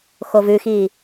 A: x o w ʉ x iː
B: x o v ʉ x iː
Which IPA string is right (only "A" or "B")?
B